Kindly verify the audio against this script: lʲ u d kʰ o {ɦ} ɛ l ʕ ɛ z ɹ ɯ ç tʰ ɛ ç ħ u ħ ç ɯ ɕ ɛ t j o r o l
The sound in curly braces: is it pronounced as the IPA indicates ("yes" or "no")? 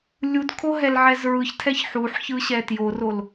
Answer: yes